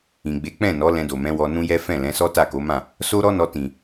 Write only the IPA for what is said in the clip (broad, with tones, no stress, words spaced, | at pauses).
ĩ˨ɡ͡be˨˦k͡pɛ̃˦˨nɔ˨˦ lɛ̃˧do˨mɛ̃˨˦wɔ˧ nũ˦jɛ˦ fɛ̃˦˨lɛ̃˨˦sɔ˦ ta˦˨ko˨˦mã˦˨ | so˦ɾɔ˦nɔ˧ tĩ˨